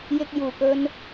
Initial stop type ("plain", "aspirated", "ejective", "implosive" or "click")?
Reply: plain